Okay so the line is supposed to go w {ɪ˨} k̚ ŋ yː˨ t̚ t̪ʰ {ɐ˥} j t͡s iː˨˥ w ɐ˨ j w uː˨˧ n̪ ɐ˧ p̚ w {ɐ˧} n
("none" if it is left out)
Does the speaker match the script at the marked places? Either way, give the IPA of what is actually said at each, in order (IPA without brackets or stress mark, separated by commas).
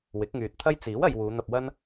ɪ˨˥, ɐ˥, ɐ˥